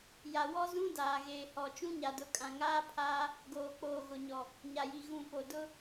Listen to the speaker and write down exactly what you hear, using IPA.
j a˨ w ɔ˦ z ũ˦ d aː˨ ɣ eː˨ h ɔ˨ t͡ʃ ũ˦ ɲ a˨ d ʊ˨˦ kʼ ã˨ ŋ aː˦ pʰ aː˦ | ɡ oː˨ k͡p oː˨ ɣ ʊ˨ ɲ ɔ˨ | ɲ a˨ j i˨ ɣ ũ˨ p o˨ d ʊ˦

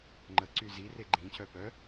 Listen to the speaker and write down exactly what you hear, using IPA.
ŋ͡ǃ ə ǀ y z i r e ɡ͡ǃ ĩ c œ p œ

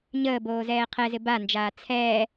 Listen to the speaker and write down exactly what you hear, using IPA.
ɲ əː b oː z ɛː qʰ ɛ z ɪ b a n d͡ʒ aː t͡sʰ ɛː

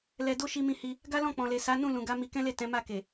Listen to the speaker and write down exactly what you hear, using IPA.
l ɛ˧ d o˦ ʃ i˧ m ĩ˧ h i˧ | ɡ a˦ l ɔ̃˦˨ k͡p ɔ̃˨ l e˨ s a˨˦ n ũ˦˨ l ũ˨ ɡ a˨˦ m i˧ k ɛ̃˦ l e˦˨ t ɛ̃˨˦ m a˦˨ k e˨

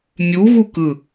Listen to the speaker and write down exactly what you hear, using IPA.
mʲ u ɣ u k ɯ

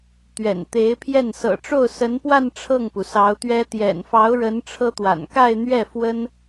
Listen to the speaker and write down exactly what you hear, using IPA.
t̪ ɥ ɛ̰˨˩ n t̪ e˧˥ ɪ̯ pʰ j ɛ˥˩ n s ɤ̰˨˩ ʈ͡ʂ o˥˩ ʊ̯ s ə˧˥ n p w a˥˧ n ʈ͡ʂʰ ɤ˥˩ ŋ p u˩ s ɑ˧˥ ʊ̯ t̪ ɥ ɛ˥ t̪ j ɛ̰˨˩ n f ɑ˧˥ ʊ̯ ɻ ə˧˥ n ʈ͡ʂʰ ɤ˥ t̪ w a̰˨˩ n k a˥˧ ɪ̯ n̪ ɥ ɛ˥˩ f w ə˥ n

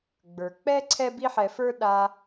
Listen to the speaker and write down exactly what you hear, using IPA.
ɡ͡b ə˞˨ k͡p ɛ˦ ǀʰ ɛ˦ b i˦ ħ ɛ˧ f ə˞˦ ɗ a˧

